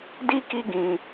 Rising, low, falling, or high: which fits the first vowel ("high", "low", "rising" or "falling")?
high